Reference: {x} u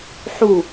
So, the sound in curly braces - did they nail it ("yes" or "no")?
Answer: no